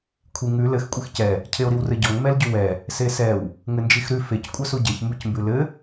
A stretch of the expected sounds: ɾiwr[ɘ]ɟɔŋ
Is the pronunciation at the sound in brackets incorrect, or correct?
correct